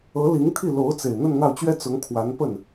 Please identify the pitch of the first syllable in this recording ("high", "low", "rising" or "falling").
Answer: rising